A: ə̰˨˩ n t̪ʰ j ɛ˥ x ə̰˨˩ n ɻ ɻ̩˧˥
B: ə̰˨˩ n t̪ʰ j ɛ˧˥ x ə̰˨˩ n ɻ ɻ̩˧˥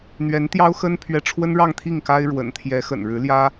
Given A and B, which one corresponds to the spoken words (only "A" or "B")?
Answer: B